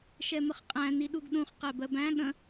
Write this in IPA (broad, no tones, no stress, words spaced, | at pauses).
ʃɛməχqʼæ̃ niɗuɡɗũχ qæbɜbæ̃ ɠə̃